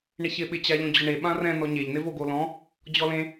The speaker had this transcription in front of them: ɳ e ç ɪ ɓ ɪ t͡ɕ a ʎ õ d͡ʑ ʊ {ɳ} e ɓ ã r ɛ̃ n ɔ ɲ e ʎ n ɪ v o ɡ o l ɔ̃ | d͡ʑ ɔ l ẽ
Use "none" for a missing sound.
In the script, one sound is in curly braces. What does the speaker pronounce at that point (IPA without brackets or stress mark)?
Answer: ɳ